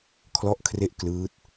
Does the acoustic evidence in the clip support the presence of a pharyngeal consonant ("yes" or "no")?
no